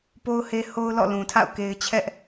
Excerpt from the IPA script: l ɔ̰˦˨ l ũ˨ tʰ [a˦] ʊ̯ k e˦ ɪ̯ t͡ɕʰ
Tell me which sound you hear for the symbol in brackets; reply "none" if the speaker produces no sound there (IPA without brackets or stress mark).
a̰˦˨